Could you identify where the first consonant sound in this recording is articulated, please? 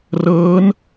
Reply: alveolar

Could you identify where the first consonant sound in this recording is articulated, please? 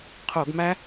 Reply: uvular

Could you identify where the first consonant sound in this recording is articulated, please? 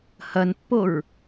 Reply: glottal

